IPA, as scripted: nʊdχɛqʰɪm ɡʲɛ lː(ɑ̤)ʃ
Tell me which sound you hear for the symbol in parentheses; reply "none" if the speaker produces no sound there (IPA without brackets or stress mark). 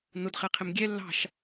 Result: ɑ̤